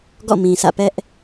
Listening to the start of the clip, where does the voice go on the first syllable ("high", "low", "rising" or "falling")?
falling